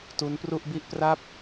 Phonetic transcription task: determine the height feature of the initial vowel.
high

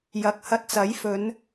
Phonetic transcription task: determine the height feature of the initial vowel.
low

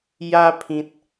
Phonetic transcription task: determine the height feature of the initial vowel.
low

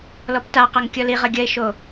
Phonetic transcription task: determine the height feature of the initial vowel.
mid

